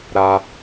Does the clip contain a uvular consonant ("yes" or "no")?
no